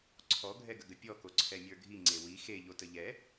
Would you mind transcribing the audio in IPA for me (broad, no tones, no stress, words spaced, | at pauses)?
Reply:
ǀʰɔ ɡʱɛɡəɡəpʲɔ koǀʰɛmʲə˞ɡʱi ŋ͡ǀewi xe ʎotəʎɛ